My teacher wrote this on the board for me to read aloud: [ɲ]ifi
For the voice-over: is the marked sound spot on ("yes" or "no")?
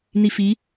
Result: no